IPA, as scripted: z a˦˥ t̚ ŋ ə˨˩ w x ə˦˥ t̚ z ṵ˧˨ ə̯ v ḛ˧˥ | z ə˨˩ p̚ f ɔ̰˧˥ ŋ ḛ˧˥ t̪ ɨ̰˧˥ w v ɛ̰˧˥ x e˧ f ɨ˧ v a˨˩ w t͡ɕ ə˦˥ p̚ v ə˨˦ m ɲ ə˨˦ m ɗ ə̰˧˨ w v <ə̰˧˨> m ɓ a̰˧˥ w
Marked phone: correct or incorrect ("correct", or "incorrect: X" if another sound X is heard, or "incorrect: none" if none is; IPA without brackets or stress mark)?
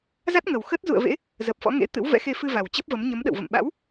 correct